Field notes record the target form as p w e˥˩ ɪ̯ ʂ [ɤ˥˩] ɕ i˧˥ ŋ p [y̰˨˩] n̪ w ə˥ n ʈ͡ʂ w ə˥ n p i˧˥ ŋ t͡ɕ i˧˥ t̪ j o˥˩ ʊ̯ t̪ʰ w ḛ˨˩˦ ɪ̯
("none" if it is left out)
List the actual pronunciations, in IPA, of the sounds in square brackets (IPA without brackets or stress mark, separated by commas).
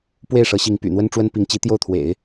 ɤ˧˥, y̰˨˩